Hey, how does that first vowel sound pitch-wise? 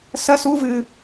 high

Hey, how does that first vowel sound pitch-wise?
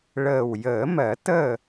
low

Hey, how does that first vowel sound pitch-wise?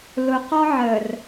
low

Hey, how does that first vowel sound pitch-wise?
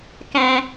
high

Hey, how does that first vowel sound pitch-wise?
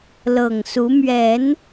low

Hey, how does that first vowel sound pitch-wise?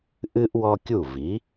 high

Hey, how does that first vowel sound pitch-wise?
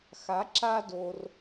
rising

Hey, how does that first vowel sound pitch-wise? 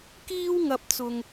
high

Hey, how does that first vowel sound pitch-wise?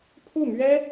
falling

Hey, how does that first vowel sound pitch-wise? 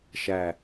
low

